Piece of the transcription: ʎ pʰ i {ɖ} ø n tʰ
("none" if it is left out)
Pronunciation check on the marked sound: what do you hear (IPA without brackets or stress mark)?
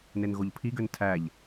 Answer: ɡ